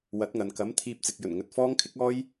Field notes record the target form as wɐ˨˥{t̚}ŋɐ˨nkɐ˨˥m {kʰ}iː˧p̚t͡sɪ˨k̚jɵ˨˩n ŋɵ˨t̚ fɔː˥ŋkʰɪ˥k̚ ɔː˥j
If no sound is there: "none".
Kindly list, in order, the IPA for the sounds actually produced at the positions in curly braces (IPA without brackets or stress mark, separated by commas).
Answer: t̚, t̪ʰ